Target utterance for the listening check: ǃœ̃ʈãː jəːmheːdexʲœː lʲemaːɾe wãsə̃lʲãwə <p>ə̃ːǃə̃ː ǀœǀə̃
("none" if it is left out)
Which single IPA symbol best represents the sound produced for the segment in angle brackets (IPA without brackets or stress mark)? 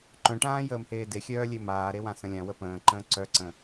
p